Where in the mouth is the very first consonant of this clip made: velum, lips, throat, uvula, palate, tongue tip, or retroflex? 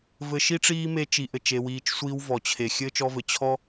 lips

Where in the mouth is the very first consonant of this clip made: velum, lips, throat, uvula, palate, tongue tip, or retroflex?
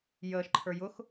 palate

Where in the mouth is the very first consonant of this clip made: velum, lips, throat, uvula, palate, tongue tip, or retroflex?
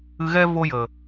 velum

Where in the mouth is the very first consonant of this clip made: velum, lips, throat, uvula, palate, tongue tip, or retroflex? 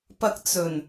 lips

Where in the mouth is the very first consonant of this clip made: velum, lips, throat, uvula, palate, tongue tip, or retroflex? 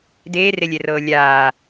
tongue tip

